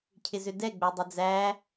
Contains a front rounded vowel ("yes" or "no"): yes